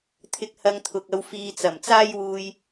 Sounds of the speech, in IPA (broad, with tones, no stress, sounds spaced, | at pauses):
t̪ʰ ɪ˨˥ k̚ h ɐ˧ ŋ t̪ʰ ʊ˨ k̚ ɐ˧ w f iː˨ t͡s ɐ˨˩ m t͡s aː˥ j w uː˧ j